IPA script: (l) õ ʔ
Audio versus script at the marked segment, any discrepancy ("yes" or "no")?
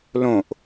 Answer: no